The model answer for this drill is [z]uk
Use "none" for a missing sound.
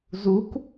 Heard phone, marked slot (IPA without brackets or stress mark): z